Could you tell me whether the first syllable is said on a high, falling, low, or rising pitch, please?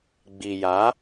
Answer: low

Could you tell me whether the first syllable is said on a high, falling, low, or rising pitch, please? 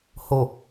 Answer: low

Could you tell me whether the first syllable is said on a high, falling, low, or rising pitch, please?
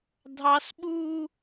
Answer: high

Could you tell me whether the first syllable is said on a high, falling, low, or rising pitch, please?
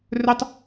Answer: high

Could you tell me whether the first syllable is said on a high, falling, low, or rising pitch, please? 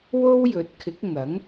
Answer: high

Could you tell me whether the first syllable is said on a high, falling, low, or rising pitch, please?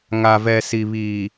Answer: low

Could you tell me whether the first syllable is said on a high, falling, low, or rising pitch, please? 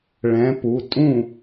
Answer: rising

